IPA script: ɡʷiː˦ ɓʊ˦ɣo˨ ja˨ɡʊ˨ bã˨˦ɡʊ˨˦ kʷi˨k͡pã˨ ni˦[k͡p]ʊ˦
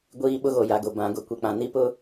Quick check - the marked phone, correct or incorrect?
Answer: incorrect